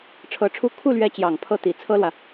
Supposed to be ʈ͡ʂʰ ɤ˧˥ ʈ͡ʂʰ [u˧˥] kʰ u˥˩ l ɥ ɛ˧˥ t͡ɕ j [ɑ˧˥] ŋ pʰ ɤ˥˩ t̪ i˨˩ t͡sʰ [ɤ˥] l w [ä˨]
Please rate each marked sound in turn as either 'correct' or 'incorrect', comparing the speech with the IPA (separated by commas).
incorrect, incorrect, correct, correct